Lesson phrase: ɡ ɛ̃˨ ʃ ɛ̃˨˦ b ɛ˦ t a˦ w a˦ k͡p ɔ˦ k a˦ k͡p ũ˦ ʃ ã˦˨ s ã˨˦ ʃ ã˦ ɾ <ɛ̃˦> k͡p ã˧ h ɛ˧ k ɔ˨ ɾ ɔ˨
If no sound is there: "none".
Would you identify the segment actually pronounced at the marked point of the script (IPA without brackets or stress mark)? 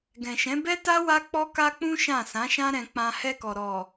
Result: ɛ̃˧